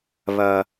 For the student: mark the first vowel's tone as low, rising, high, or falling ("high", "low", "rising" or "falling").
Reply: low